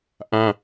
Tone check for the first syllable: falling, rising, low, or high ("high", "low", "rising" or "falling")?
high